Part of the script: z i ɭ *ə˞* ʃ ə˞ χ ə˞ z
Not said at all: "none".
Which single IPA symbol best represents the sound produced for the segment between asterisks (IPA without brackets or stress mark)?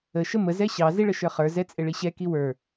ə